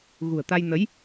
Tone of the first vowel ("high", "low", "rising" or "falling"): low